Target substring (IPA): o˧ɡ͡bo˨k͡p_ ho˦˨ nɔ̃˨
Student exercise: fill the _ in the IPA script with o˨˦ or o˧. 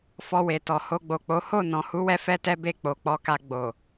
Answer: o˨˦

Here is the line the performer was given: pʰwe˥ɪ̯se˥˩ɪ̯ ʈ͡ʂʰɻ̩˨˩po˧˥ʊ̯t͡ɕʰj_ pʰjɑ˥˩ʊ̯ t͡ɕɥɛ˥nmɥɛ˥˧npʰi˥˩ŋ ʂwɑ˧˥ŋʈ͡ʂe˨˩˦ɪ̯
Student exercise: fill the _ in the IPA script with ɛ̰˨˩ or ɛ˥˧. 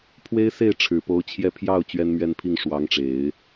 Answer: ɛ˥˧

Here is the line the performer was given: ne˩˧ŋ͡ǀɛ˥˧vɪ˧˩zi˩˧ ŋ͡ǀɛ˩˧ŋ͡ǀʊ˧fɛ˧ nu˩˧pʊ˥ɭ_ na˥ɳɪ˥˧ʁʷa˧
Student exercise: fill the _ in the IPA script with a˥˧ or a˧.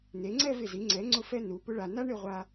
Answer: a˧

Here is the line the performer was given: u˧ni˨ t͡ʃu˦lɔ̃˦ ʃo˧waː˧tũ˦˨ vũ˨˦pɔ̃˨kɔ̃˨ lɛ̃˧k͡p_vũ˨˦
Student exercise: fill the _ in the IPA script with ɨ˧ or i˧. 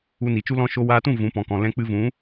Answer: ɨ˧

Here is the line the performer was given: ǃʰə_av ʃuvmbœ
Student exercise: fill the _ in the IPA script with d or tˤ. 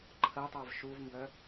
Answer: tˤ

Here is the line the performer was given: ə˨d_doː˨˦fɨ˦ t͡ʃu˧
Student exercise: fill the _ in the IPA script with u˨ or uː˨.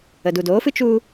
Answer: u˨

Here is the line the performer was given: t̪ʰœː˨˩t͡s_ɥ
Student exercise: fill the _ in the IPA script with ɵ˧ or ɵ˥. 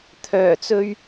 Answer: ɵ˧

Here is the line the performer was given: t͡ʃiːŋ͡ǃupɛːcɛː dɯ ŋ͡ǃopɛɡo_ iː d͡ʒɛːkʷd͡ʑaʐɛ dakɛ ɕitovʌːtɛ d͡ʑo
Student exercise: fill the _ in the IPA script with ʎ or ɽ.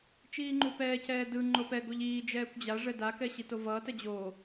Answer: ʎ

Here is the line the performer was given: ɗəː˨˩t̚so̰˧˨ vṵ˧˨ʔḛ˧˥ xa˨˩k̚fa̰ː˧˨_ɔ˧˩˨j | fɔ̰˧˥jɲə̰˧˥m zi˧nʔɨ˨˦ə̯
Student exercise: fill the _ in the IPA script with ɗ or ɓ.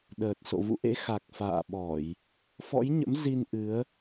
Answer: ɓ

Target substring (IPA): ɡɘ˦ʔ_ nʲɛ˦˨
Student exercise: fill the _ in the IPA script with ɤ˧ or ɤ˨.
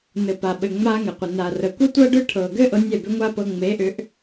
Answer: ɤ˧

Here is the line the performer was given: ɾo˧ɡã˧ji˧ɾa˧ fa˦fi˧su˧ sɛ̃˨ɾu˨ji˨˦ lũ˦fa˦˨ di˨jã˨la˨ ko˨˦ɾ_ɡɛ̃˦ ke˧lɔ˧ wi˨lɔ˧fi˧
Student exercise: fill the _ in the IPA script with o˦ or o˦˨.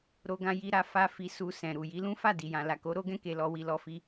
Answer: o˦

